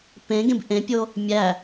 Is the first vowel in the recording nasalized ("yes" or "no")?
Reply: yes